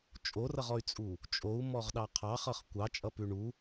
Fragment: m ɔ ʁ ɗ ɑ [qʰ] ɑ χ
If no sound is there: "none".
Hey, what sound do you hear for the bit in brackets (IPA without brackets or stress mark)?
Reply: qʰ